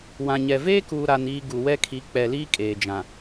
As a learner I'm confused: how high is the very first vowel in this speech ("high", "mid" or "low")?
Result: low